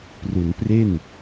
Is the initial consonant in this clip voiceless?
yes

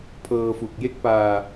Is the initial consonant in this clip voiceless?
yes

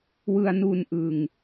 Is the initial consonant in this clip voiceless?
no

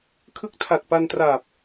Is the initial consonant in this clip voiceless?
yes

